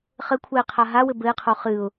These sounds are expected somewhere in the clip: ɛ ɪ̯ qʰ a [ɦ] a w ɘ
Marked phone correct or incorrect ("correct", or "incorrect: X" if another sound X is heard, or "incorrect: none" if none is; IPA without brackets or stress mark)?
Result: correct